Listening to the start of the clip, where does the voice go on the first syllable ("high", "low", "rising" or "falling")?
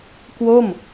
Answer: falling